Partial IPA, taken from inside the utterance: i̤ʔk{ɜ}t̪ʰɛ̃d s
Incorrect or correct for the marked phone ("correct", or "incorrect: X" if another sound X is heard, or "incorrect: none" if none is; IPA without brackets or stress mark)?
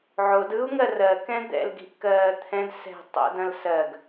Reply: incorrect: ɜː